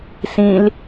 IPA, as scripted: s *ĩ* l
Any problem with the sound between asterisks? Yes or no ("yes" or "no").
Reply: no